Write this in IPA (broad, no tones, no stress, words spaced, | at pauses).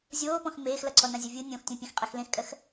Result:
zʲoːpɔ̃x meːxlʌǀʰɔ nãzʲʌvʲu nʲõxtʲõpʲẽx qʼɛxlẽxkʼɜx